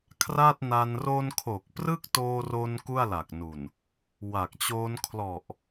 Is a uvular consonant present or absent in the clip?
absent